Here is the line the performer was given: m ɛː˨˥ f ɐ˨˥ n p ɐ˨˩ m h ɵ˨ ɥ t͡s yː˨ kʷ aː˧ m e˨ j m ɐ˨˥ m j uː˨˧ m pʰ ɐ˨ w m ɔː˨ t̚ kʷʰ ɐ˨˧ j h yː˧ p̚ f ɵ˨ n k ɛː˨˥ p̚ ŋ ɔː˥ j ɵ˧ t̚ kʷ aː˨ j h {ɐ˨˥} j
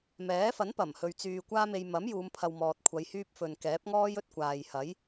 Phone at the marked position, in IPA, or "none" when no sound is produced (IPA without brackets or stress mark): ɐ˨˥